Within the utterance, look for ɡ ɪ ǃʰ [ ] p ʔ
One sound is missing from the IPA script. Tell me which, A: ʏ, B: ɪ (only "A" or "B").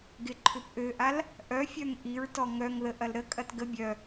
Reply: A